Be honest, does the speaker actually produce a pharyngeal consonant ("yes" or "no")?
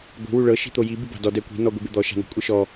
no